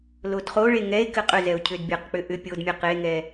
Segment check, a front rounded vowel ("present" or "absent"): present